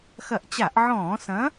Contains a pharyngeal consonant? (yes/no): yes